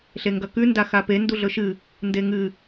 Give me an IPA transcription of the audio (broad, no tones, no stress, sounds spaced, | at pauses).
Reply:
ɬ e ŋ ɡ ɐ k ʉ n d a x a p e n d u ɮ ɵ ʃ ɨ | n d e ŋ ɨ